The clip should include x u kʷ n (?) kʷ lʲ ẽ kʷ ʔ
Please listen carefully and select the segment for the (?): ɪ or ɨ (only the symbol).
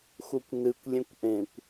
ɨ